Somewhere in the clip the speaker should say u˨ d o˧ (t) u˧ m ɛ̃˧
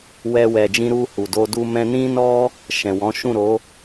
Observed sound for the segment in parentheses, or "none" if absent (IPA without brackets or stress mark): d